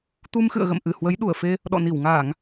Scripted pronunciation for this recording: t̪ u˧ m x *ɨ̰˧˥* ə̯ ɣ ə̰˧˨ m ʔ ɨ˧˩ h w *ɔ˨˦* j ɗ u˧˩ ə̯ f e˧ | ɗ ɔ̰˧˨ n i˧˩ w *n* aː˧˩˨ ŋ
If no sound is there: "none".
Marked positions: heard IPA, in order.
ɨ̰˧˨, ə˨˦, ŋ

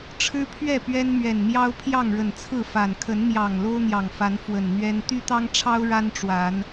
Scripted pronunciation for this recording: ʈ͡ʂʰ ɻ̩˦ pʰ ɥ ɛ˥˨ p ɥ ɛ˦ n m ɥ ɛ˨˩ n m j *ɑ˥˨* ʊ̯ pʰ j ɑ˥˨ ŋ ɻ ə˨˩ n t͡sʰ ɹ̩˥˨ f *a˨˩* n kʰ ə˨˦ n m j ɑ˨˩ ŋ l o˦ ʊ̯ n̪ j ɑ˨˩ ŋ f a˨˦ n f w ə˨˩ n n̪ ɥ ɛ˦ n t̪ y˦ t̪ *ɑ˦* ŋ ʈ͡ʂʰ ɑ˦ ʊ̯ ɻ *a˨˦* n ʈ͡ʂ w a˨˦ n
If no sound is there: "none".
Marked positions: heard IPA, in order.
ɑ˦, a˨˩, ɑ˦, a˦

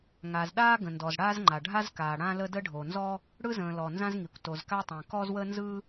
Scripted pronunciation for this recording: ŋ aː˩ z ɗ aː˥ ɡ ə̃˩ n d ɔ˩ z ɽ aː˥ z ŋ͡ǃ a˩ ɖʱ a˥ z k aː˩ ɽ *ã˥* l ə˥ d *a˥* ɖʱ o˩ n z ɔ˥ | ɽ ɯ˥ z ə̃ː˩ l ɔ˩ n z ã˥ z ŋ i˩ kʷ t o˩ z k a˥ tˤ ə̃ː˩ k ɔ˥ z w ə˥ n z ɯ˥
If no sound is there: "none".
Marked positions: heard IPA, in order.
ã˥, ə˥

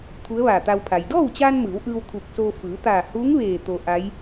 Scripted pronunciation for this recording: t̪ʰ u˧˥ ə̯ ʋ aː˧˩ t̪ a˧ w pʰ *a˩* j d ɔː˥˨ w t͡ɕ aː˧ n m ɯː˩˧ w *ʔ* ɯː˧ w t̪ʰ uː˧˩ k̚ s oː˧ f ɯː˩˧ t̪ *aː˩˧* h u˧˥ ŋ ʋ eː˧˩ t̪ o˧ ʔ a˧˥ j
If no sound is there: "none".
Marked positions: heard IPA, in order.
a˩, ʔ, aː˧˩

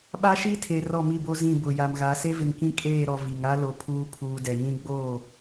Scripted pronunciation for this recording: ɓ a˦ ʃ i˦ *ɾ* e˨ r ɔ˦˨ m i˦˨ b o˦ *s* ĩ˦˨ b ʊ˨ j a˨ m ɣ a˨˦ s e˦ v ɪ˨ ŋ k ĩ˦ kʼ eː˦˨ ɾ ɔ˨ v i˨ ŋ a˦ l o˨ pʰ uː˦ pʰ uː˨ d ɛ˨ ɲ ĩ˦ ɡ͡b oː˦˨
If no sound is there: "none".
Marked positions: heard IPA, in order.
tʰ, z

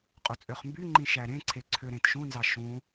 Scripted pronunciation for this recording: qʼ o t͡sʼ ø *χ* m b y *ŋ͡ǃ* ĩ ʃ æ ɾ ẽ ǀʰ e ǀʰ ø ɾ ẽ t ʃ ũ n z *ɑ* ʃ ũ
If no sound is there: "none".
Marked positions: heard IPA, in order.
χ, ŋ͡ǃ, ɑ

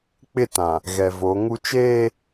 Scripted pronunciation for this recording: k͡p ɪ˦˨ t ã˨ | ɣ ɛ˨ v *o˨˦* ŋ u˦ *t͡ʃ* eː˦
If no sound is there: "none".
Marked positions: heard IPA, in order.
o˨˦, t͡ʃ

